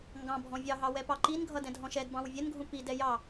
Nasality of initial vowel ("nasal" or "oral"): nasal